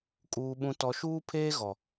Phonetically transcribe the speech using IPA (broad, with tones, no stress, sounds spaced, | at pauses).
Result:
kʼ uː˨ ɓ ũ˨ t ɔ˨ ʃ uː˦ pʰ eː˦ ɣ ɔ˨